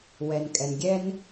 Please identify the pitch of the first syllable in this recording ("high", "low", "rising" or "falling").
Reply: low